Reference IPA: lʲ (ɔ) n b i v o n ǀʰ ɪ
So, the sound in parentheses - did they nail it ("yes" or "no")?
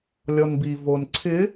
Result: yes